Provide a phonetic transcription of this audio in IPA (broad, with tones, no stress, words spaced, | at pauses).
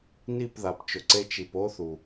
ni˦˨pða˨pt͡ʃʊ˨ǀe˧ t͡ʃi˨po˦θu˨